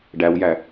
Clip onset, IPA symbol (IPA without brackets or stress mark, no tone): ɖ